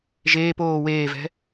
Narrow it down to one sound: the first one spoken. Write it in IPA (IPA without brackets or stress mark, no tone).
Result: ʒ